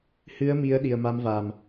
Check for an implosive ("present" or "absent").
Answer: present